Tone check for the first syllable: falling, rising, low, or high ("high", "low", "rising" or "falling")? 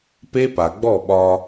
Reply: high